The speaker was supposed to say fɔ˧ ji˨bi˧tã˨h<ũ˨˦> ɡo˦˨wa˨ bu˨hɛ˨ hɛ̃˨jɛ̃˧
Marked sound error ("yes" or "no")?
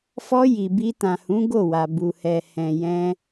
no